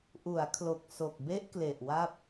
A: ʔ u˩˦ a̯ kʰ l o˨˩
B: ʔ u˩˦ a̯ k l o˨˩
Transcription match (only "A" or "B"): A